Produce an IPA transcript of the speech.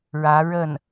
ɻ ä˧˥ ɻ ə˥˩ n

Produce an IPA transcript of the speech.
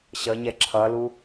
ɕ ʌ ɲ ɛ ǁʰ ʌ l u

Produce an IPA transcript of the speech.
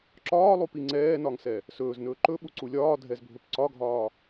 ǁ ɒː lˠ u p i ŋ͡ǀ ɛː n ɒ ŋ s ɛ | s ɵː z n ɵː ǃ ɵ ɓ u ǀ u lʲ ɒː dʱ ɛ z bʱ ɵ p ǀ ɒ ɡʱ ɒː

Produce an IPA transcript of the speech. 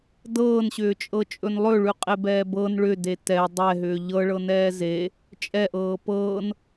d ɤː n ɕ ʏː t͡ʃʼ ɤ t͡ʃʼ ɵ n lˠ ɵ ɭ ʉ qʼ e b ɛː b ɤ n ɭ ʏ d e t ɛ dˤ ɛ ɦ ʏː ʎ ɤ ɭ ɤ n ɛː z e | t͡ʃʼ ɛ ʔ ɤː p ɤː n

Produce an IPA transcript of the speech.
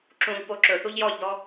ǁ ũ ʎ p o ǁ ɵ θ u ʎ j ɔ ʎ d ɔ

